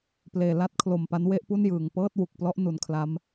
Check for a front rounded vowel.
absent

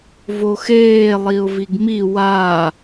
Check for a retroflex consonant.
absent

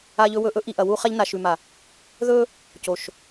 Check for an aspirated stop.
absent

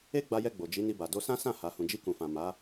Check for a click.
absent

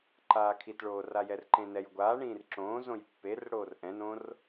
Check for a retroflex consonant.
present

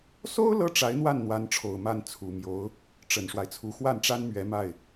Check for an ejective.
absent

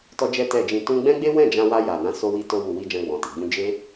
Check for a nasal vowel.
present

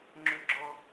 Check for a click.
present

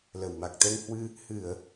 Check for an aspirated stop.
absent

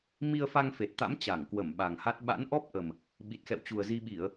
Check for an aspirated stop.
absent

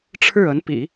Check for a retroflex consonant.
present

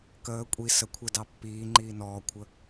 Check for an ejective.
present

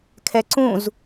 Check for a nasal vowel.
present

